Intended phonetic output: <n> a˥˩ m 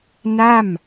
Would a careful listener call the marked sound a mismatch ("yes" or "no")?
no